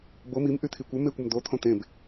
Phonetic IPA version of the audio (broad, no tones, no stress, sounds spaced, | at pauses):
b o m i m ʔ y t̪ʰ i kʷ ɘ m e kʷ ə m d̪ o t̪ʰ õ t̪ ẽ b